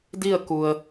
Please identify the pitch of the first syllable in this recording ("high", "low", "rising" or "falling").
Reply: falling